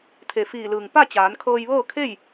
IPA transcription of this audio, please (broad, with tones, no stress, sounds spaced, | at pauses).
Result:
t̪ʰ e˩ f iː˧˩ l ɯː˩ ŋ p a˥˨ t͡ɕ aː˩˧ n kʰ ɤː˧ j ʋ ɤː˥˨ kʰ e˥˨ j